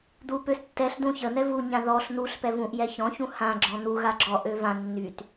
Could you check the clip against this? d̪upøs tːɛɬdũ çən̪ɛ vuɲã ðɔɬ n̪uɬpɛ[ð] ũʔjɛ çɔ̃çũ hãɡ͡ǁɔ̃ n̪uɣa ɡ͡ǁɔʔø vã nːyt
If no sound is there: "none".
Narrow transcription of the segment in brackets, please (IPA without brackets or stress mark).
v